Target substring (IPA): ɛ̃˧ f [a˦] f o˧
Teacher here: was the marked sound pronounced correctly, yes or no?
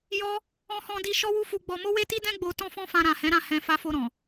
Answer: no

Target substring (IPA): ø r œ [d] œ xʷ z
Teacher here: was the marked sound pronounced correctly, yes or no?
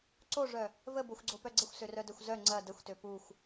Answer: yes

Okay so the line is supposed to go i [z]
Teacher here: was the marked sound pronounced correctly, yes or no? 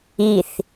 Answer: no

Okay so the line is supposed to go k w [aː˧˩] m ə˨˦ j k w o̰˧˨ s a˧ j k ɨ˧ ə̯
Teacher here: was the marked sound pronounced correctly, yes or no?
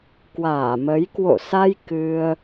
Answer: yes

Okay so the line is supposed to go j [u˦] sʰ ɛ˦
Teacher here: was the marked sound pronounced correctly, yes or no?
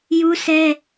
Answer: yes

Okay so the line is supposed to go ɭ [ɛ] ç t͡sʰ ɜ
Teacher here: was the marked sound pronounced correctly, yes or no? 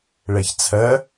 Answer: yes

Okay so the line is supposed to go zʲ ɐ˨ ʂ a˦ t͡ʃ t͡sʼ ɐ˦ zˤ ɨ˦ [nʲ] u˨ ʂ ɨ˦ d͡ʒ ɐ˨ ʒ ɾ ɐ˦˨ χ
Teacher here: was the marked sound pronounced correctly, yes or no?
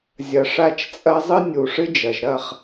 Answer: yes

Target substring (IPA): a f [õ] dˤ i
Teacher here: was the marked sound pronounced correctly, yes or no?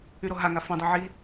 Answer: yes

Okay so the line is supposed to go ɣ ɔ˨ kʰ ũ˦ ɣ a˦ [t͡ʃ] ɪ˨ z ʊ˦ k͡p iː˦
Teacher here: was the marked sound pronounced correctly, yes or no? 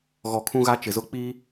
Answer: yes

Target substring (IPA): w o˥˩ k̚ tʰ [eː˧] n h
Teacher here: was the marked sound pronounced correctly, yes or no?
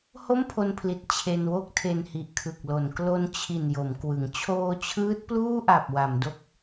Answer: no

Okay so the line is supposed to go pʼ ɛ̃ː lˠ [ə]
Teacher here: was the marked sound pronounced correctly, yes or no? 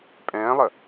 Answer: yes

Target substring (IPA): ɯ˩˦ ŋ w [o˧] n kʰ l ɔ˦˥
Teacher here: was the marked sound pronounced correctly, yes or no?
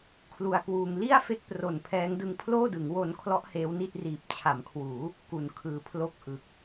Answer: yes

